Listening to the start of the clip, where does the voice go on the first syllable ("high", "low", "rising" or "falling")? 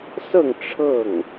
falling